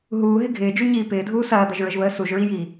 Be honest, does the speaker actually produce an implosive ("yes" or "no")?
no